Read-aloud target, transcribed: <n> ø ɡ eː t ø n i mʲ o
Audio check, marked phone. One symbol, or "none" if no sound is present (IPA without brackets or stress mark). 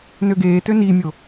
n